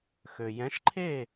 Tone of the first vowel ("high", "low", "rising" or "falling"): low